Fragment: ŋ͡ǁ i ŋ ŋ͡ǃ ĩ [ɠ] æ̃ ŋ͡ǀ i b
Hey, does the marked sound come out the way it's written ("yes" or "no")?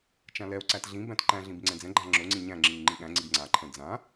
yes